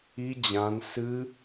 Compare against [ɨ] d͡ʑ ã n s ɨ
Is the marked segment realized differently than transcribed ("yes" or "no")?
yes